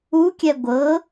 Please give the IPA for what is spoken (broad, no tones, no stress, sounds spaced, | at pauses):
u kʲ ɛ ɡʷ ɤ